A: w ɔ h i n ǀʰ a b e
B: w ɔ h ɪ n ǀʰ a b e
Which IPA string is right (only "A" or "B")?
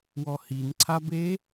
A